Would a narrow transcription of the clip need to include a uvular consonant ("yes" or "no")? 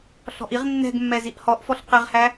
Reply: yes